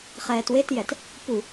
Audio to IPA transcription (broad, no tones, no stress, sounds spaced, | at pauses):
χ ɛː t w e t j ɛ t | p u